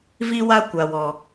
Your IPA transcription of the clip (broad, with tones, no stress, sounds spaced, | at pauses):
v i˧ w a˧ kʷ a˨ w ɔ˨